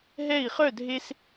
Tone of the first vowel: falling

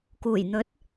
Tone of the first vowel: low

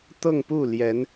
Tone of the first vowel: falling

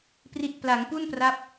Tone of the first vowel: low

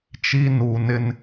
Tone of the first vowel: high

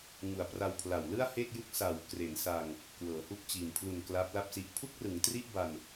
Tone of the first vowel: low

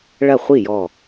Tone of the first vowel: falling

